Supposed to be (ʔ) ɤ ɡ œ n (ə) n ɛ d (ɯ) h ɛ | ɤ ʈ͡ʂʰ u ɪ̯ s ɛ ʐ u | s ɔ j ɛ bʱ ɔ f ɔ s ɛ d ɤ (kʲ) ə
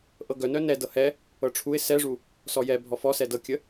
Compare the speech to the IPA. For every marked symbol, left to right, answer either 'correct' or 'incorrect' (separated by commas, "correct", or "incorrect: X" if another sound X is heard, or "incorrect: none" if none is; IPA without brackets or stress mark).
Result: correct, incorrect: œ, incorrect: ɤ, correct